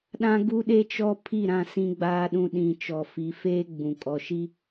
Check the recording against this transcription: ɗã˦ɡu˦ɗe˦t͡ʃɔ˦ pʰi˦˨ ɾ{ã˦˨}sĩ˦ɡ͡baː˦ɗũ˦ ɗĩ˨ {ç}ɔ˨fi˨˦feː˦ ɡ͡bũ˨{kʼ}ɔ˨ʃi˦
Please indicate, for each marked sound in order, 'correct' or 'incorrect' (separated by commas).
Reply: correct, incorrect, correct